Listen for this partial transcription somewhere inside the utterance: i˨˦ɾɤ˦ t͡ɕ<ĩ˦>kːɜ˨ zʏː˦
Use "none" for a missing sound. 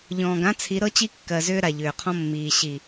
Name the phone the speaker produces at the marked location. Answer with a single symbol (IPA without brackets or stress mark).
i˦